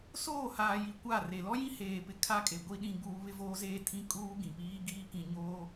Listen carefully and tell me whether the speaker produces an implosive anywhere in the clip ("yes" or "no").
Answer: yes